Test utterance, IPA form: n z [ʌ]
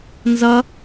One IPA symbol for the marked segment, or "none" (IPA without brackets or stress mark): ʌ